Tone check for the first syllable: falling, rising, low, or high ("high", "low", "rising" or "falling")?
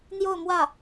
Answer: falling